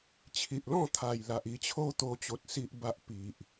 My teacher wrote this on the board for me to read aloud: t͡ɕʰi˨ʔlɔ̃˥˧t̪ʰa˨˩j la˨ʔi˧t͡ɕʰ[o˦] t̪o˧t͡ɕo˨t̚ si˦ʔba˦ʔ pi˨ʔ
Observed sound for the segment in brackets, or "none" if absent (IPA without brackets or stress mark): o˦